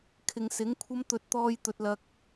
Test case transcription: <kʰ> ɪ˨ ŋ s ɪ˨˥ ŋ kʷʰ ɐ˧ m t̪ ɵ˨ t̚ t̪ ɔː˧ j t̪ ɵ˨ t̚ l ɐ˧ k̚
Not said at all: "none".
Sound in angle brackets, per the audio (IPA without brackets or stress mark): kʰ